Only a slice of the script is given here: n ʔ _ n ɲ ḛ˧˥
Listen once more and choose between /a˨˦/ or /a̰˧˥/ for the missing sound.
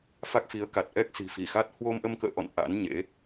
a̰˧˥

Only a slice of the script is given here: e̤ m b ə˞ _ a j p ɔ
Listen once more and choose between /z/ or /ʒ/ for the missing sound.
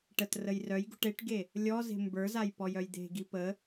z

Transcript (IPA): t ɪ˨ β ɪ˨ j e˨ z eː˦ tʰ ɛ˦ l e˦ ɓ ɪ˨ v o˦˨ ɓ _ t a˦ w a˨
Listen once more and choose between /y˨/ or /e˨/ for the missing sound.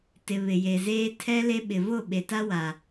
e˨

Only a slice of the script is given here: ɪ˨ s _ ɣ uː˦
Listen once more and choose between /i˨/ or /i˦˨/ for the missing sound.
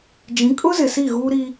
i˦˨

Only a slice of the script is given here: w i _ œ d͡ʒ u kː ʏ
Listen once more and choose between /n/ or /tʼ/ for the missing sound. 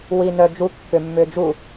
n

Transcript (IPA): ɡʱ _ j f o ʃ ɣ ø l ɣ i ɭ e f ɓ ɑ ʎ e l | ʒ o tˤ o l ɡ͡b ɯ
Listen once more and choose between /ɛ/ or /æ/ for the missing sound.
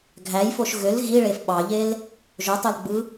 æ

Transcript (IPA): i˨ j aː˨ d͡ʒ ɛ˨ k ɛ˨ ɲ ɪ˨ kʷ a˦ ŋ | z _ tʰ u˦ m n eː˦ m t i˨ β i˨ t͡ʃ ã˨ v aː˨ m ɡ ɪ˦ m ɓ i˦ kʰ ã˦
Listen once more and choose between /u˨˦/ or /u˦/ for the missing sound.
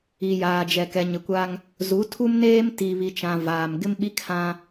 u˨˦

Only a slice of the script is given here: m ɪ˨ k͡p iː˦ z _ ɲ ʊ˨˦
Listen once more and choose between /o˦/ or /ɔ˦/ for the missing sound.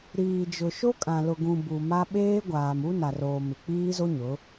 o˦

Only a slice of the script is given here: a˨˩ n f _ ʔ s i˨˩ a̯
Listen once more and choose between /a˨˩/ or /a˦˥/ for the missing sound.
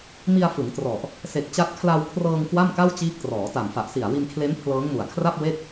a˨˩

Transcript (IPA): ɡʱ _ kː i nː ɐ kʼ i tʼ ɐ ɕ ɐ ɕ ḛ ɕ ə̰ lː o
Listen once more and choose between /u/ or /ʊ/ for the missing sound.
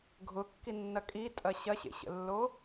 ʊ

